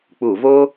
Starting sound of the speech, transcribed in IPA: k͡p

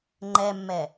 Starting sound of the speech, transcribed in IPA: ŋ͡ǃ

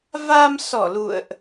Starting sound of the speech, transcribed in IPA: v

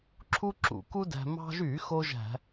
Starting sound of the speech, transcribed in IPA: ǁʰ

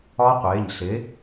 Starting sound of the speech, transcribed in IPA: ɒ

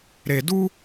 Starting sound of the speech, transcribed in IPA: ɾ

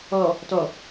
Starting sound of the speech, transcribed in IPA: ɔ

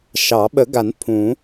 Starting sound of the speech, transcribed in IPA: ʃ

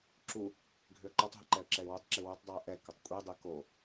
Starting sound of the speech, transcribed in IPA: ǁ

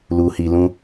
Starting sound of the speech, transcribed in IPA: l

